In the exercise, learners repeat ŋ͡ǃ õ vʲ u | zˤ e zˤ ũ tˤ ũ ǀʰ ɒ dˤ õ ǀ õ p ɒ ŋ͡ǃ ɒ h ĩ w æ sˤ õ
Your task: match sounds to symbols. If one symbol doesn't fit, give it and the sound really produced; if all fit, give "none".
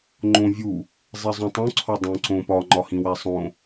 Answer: none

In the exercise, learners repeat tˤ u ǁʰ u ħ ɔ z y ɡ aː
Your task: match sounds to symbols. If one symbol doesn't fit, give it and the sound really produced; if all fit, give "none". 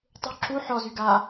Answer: none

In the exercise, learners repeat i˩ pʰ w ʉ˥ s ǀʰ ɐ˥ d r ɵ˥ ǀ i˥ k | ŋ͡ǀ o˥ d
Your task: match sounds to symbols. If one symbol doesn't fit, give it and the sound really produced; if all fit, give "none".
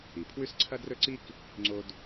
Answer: none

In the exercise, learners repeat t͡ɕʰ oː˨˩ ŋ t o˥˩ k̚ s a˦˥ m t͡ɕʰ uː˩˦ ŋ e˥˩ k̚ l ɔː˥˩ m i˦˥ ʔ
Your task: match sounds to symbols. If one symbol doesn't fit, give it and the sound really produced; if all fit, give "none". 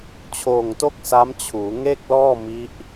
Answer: none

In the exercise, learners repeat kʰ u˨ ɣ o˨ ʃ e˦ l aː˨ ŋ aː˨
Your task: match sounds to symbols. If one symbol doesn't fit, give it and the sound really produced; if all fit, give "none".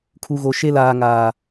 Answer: none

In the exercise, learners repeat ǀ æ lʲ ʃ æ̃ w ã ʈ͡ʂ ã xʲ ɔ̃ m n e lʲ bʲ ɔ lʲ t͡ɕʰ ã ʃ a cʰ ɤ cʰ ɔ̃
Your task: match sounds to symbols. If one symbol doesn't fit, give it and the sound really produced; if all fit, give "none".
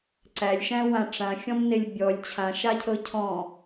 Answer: none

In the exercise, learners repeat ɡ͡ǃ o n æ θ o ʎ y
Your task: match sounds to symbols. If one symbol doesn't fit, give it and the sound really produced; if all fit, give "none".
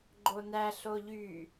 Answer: θ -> ɬ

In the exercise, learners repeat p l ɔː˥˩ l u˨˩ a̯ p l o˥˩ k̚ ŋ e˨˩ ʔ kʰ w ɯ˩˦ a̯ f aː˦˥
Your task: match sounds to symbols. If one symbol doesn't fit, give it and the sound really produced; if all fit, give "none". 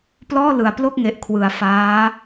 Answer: u˨˩ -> ɯ˨˩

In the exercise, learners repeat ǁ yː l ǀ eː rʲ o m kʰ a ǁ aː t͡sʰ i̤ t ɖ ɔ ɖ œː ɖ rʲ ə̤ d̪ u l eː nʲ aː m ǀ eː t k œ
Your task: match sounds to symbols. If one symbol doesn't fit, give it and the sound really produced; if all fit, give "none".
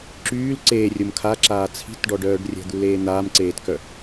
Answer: nʲ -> n̪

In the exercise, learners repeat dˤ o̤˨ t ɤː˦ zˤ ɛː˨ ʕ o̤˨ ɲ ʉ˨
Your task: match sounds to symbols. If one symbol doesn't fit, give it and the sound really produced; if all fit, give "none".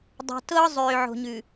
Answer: ɛː˨ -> øː˨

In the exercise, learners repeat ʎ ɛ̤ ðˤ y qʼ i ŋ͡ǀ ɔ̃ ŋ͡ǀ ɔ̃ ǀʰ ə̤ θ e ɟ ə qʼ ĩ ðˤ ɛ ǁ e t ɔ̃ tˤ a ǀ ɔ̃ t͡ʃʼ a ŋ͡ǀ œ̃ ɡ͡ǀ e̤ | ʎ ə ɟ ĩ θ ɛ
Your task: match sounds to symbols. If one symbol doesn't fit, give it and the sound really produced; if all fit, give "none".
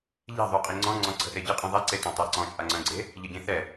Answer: ǁ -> ǀ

